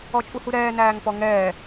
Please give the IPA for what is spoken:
ɔt͡ʃʼuhuɾɛː næːŋpɔŋɛː

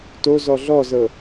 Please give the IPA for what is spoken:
tozɔ ɮɔzɤ

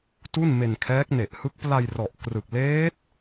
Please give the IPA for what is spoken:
tu˥˩nme˧nkʰɛː˦˥k̚ ne˨˩ʔhɯ˦˥k̚ pla˧jrɔ˨˩ʔkrɯ˨˩k̚ leː˦˥t̚

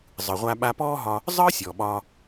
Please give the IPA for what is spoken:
zˤɯ˩ʁʷa˧ ɓa˧pɔː˥ɦɒː˧ | zˤɯː˥sʲɔ˩ ɓɒː˧

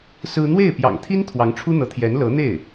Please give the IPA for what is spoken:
sɹ̩˥ n̪we˥˩ɪ̯ pjɑ̰˨˩ŋt̪ʰi˥n t̪ʰwɑ˧˥ŋʈ͡ʂʰu˥ n̪ɤ˧˥t̪ʰjɛ˧˥n lɤ˧˥n̪e˥˩ɪ̯

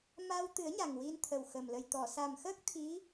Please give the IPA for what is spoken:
ma˧wt̪ɨ˨˩˦ə̯ ɲa˨˩ŋwi˧nt̪ʰə˨˩wxə˨˩m lə˨˩jt̪ɔ˨˩˨ sa˨˩mxəː˦˥k̚ t̪ʰi˧˥

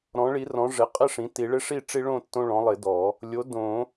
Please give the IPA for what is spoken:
ɾɔ̃˩˥ɭi˩˥rɔ̃˩˥ ʐɪ˩˥ qʼɪ˥˨ʂĩ˩˥ti˨˩˦ ɭɪ˦ʂi˥˨ʈ͡ʂi˦ɭõ˥˨ tːõ˦ɭɔ̃˩˥lˠɪ˨˩˦dɔ˨˩˦ | lʲo˩˥dõ˨˩˦

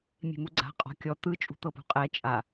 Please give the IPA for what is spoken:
mʲe̤muɡ͡ǀa̤ qʼɔ̤kʲɔ t̪ɯ t͡ʃʼṳt̪ɤpṳqʼɛ t͡ʃʼa

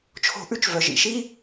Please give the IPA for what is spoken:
t͡ʃʰo̤˧˩ʔʉ˦t͡ʃ vœ˩ʒḭ˩ʃi˦

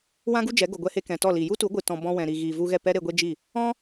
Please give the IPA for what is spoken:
wã˦ɡu˦ d͡ʒɛ˨˦ɡo˨ɡʷɛ˧he˧ kɛ̃˨tɔ˦˨li˨ ju˦tu˨˦ɡʷɨ˨ tɔ̃˨ bɔ̃˧wɛ̃˨ɾi˨ɣi˨ vu˧ɣɛ˦˨pɛ˦ ɾe˧ɡʷe˦d͡ʒi˦˨ | ɔ̃˦

